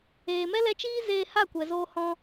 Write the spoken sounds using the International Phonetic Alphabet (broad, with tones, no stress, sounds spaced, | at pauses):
eː˨ m ɛ˦ l ɛ˧ t͡ʃ iː˦ z eː˧ h a˦˨ kʷ ɛ˨ z oː˧ h ɔ̃˧